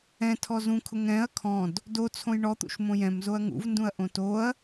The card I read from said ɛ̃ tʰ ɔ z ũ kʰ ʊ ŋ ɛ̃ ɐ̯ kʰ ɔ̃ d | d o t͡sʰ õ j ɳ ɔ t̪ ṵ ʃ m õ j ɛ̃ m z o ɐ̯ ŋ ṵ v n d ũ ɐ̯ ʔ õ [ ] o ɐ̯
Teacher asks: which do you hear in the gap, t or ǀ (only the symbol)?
t